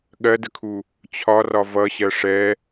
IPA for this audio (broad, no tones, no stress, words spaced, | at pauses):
ɠɜdəkʰu | t͡ɕʰɒrɒ vʌɕɜ ʂɛ